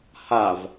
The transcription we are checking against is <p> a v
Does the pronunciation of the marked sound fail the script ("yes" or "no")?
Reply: yes